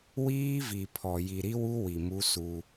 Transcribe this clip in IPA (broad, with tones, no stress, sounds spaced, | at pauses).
w iː˦ v i˨ pʰ ɔ˨ j i˨ ɾ i˦ w u˦ w i˨ m u˦ s u˦